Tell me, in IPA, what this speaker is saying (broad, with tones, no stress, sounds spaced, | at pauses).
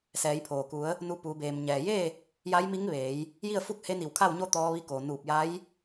s ɛː˩˧ j pʰ oː˩ k u˩˧ ə̯ | n u˧ p uː˩˧ b eː˩ m ɲ ɛː˩ j e˥˨ | j a˧˥ j m i˧˥ ŋ ʋ eː˩˧ j | j i˥˨ ə̯ f u˥˨ k̚ h e˧˥ n i˧˩ w kʰ a˥˨ w ɲ o˥˨ t̪ ɔː˧ ʋ i˧ k oː˩ n uː˧˩ p̚ j a˧˥ j